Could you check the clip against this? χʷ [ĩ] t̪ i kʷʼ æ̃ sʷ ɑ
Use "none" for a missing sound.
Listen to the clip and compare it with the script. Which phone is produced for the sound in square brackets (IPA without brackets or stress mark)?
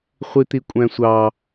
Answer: i